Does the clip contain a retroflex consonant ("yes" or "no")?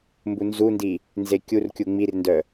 no